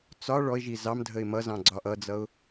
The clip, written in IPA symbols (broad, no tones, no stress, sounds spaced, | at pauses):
t͡s ɒ ɭ ɔ ɪ̯ ʒ i z ɑ m dʱ ə ɪ̯ m ʌ z ɑ̃ ɡ͡ǀ ɒ ʔ ʌ d͡z ʌ ʊ̯